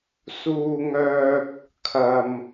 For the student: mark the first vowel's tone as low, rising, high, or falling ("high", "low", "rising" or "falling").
high